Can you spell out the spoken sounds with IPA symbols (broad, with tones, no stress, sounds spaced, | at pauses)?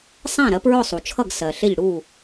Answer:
sˤ æ̃˥˨ ɾ ɜ˩˥ p ɹ ʊ˥˨ sˤ u˩ t͡ʃʰ ʌ˥˨ ɡ s ɜ˩ ɬ ɪ˥˨ ʎ ɽ u˥˨